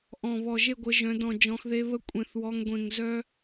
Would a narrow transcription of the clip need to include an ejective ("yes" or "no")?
yes